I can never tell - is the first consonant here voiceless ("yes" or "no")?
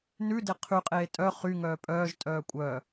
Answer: no